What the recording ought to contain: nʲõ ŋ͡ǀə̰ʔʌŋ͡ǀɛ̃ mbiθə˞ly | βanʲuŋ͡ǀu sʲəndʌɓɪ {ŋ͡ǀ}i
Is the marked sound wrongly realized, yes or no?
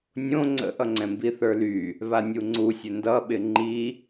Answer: yes